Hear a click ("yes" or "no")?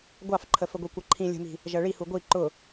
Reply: yes